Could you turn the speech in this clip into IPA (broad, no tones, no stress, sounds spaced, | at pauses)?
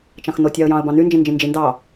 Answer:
t͡ʃ ɑ̃ x n o tʲ ɑ ə̯ j ɑ̃ ə̯ b ɑ̃ n y n d͡ʒ ĩ n d͡ʒ ĩ n d͡ʒ i n d ɑ